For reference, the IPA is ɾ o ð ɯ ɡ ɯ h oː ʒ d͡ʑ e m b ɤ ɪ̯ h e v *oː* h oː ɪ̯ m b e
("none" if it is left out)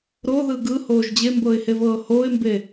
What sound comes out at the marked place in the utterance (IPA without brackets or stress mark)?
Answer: ɤː